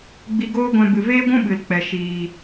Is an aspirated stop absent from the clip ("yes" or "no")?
yes